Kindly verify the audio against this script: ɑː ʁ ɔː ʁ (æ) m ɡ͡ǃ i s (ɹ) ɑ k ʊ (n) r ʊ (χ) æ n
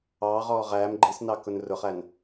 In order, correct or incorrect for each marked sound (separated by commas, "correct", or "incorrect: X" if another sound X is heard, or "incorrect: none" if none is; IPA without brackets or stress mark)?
incorrect: æː, incorrect: n, correct, correct